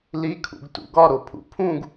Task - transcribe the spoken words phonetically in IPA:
l i kʰ ṵ ɡ t ṵ ɡ ɒ ɾ o pʰ ṵ pʰ ũ ɡ

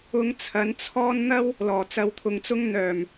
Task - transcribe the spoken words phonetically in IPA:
ʊ˧ ŋ t͡sʰ ɐ˨˥ n t͡sʰ ɔː˥ n n̪ ɐ˥ w | l ɔː˨˩ t͡s ɐ˨˧ w t̪ʰ ʊ˨ ŋ t͡s ʊ˥ ŋ n̪ œː˨˩ m

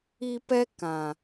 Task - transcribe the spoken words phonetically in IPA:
i˧ p ɛ˦ k ã˨

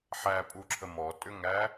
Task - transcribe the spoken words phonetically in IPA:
ħ æ pʼ u ǁʰ ə m ɔ tʼ ʏ ŋ æ

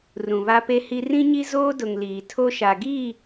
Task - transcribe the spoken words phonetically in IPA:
r ũ˨ β a˦ p e˦ h i˦ r ĩ˦ ɲ i˦ z oː˦ d ʊ˨ ŋ l iː˨ tʰ o˦ ʃ a˨ ɡ i˦˨

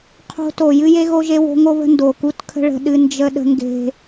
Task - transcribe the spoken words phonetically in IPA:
qʰ o̤˦ t o˨ j ɨ˦ j e˦ ɣ o˦ ʒ e˦ w o̤˦ ŋ o˦ β ə̤˦ n d o˨ k u˦ t kʰ ə̤˦ ɭ ə̤˦ ɗ ɨ˦ n d͡ʒ ə˦ ɗ ə̤˦ ŋ ɡ e̤˦

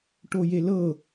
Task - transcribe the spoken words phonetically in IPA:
ʈ o j e l ɤ

